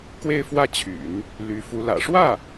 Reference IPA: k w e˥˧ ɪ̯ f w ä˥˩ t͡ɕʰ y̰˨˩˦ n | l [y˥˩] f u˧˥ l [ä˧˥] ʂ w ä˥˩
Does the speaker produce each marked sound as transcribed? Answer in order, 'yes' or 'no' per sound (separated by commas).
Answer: no, no